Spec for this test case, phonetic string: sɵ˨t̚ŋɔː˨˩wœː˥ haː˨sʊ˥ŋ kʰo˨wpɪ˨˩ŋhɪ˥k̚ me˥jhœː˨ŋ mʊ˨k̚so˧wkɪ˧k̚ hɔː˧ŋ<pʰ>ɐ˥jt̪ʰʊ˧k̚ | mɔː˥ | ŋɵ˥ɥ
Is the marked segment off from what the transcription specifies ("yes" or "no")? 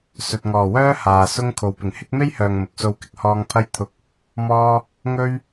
no